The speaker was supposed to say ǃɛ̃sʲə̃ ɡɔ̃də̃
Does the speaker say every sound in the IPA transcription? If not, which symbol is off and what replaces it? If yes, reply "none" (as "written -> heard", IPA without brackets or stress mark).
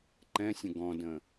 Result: none